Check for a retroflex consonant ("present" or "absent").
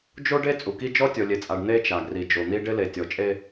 present